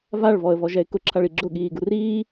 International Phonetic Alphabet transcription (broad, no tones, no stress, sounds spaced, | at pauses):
v a ɭ v ɔ ə̯ v ɔ ʒ ɛ ɪ̯ k ʊ ǁʰ a ɭ i ɡ͡ǁ ʊ ɠ iː ɡ u r iː